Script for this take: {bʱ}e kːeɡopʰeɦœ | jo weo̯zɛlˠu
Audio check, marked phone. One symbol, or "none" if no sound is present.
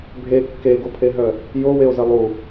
bʱ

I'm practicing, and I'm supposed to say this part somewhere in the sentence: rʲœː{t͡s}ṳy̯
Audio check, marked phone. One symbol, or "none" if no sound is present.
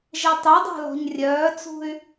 t͡s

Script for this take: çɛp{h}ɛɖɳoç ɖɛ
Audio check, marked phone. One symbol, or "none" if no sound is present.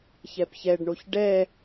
ç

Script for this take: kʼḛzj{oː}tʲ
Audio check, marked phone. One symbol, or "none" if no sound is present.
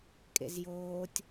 oː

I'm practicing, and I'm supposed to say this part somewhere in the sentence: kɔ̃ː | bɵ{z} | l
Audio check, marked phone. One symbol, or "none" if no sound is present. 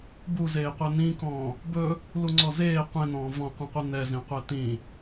none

